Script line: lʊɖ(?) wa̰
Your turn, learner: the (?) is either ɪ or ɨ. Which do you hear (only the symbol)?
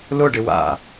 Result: ɪ